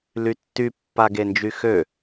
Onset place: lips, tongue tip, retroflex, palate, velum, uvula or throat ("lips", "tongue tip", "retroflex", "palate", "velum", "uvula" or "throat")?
tongue tip